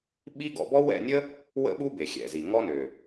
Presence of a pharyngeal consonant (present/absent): absent